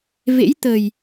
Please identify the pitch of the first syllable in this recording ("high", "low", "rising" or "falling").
rising